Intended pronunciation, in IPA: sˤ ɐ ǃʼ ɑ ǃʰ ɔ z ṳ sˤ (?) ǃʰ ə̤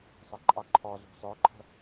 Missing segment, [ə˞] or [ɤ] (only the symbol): ə˞